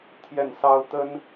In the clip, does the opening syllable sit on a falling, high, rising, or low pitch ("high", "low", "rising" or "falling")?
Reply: falling